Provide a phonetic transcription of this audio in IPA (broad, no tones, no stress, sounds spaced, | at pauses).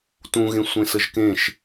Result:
t ũ ɣ ẽ sʷ ẽ s ə ʒ k ẽ ʃ